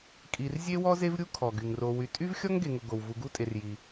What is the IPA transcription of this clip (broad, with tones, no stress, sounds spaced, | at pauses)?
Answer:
kʼ i˨ r zʲ e˥ w ɔ˥ z e˥ v ɾʲ u˥ kʰ ɔ˩ ɡ y˩ ŋ r o˨ w y˨ tʼ y˥ v xʲ ɔ˥ ŋ ɡ e˨ ŋ ʊ˨ ɡ o˩ w v u˨ ɡ u˥ tʼ e˨ r j i˩